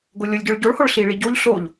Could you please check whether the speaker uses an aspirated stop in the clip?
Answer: no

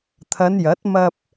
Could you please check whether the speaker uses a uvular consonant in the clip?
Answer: no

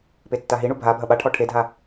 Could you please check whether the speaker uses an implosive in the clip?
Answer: yes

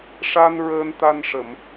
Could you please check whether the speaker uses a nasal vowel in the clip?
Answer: no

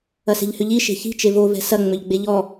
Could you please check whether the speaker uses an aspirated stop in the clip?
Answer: no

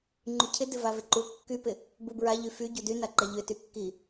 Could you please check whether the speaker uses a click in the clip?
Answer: yes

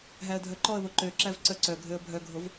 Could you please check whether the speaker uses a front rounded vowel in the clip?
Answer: yes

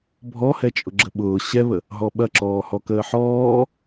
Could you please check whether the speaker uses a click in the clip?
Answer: yes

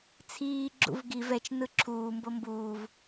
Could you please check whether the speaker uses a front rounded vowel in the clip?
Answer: no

